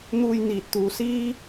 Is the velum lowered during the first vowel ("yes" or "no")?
no